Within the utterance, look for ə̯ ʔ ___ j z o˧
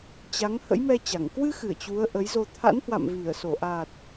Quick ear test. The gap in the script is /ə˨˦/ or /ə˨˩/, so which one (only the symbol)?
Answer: ə˨˦